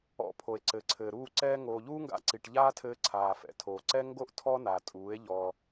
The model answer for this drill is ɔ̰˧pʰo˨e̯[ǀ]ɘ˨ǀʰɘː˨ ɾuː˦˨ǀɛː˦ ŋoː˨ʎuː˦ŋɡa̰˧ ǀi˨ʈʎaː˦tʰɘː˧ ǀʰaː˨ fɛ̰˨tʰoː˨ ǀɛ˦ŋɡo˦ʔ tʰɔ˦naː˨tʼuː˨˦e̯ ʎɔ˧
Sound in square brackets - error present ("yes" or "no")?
no